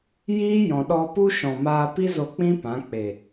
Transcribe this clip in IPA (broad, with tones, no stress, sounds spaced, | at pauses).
j iː˦ j ɔ̃˨ ɗ ɔ˧ p u˦ ʃ ɔ̃˨ m aː˧ p i˦ z o˧ k͡p ĩ˦ p ã˨˦ k͡p e˨